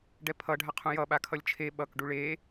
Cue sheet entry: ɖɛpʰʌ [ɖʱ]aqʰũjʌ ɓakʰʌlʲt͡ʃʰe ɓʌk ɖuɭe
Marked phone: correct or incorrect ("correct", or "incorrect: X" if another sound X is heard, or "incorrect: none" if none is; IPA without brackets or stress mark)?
correct